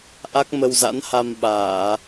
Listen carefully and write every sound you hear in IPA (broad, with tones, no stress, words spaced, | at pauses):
ʔa˦˥k̚mə˧wza̰˧˥n ha˧m ɓaː˧˩˨